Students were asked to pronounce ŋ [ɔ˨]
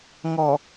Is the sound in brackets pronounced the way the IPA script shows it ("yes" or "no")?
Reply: yes